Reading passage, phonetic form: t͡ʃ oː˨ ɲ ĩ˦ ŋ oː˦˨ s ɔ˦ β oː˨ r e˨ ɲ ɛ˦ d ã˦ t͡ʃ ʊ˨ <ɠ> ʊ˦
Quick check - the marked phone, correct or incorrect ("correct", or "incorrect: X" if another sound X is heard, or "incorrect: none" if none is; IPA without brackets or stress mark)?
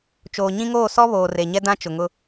incorrect: ŋ